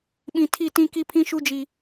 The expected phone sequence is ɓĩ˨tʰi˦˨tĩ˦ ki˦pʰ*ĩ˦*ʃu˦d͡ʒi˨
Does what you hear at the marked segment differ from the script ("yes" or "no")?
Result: no